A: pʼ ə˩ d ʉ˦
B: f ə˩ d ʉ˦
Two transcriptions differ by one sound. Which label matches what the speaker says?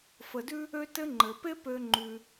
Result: B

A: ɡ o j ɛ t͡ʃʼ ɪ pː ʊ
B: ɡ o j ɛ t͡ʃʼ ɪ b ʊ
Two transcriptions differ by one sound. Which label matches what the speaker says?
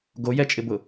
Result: B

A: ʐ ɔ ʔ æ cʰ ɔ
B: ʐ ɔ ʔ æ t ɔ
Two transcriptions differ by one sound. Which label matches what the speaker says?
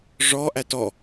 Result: B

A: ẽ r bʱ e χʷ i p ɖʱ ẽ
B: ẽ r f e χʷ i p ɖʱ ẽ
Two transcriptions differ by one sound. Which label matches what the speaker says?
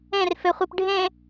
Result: B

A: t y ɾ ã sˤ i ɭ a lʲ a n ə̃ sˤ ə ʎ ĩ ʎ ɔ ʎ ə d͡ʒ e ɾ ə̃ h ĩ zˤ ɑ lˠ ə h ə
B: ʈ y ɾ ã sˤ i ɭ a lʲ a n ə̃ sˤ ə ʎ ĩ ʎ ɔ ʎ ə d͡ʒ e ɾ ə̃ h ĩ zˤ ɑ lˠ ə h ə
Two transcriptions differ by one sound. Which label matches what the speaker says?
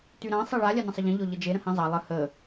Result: A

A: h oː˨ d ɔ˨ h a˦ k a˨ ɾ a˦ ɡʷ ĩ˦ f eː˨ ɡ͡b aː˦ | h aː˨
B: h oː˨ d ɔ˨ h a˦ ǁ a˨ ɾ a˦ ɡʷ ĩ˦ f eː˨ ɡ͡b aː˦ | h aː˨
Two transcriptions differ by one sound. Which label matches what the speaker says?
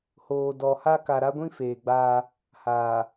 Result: A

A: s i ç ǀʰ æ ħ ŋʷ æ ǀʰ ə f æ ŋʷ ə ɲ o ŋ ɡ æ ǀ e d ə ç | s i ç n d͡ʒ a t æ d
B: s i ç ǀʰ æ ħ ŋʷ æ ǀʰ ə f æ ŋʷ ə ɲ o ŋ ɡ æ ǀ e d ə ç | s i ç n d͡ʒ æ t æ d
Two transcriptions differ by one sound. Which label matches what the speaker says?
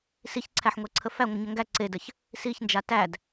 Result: A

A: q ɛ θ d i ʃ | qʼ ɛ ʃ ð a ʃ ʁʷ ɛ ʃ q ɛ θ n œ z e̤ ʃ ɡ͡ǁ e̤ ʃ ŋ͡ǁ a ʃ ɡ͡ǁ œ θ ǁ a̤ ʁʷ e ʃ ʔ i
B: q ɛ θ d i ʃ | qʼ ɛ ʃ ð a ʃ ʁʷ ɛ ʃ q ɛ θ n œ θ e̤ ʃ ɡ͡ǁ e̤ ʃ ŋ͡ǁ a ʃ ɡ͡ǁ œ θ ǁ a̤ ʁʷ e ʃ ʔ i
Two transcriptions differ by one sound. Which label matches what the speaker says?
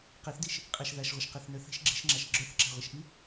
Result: B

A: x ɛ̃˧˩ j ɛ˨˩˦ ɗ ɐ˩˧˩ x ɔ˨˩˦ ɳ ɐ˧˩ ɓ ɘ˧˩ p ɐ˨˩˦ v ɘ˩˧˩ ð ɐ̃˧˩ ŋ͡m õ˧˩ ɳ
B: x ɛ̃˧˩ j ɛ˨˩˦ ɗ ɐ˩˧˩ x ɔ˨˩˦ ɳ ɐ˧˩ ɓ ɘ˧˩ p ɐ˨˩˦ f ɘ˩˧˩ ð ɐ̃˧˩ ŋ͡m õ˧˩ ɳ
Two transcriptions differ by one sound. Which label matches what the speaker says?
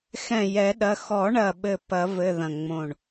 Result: A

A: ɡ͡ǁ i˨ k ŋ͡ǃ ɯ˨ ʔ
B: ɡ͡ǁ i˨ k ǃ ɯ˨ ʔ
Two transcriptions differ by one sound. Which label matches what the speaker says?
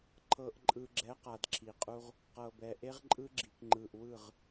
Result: A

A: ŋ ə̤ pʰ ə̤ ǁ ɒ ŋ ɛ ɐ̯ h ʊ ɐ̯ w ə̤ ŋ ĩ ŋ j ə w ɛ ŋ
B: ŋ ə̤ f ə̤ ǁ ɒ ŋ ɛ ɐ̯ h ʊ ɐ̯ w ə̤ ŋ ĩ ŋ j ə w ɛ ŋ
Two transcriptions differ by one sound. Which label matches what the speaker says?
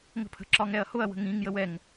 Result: A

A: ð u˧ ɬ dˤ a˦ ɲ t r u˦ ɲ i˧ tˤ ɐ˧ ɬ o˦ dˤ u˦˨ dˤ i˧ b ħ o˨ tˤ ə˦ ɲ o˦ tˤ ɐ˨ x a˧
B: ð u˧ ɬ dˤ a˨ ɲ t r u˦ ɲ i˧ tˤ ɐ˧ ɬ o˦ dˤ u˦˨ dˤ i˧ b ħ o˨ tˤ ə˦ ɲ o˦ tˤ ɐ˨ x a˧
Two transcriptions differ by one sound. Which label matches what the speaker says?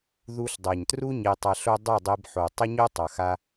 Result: B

